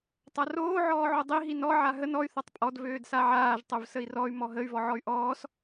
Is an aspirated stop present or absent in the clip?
absent